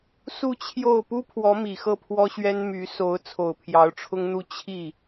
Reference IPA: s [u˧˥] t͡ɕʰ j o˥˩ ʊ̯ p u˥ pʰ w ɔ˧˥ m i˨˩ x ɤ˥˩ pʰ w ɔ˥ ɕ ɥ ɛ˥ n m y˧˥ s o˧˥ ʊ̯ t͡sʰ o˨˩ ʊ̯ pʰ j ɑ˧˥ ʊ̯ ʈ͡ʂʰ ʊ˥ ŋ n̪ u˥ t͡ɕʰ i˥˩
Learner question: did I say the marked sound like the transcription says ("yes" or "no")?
no